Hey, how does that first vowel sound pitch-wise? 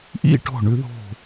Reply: falling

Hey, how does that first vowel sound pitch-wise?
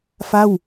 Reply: falling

